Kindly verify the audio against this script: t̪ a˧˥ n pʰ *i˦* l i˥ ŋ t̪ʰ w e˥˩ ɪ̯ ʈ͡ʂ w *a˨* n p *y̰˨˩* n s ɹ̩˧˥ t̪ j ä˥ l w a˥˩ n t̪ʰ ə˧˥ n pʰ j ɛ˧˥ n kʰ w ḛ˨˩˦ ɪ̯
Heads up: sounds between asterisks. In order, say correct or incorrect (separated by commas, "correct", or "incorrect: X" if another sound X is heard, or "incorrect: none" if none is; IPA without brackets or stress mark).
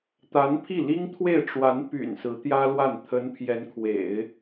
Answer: incorrect: i˥˩, incorrect: a˧˥, correct